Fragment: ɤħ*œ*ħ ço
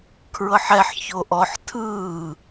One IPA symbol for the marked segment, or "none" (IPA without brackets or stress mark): ɛ